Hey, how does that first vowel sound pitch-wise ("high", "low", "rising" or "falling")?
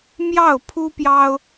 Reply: falling